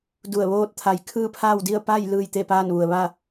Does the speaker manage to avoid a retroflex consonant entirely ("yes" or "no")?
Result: yes